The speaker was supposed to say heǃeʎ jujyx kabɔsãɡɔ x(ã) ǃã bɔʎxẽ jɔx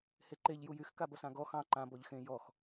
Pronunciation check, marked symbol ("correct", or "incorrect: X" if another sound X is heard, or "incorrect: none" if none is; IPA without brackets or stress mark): incorrect: ɑ̃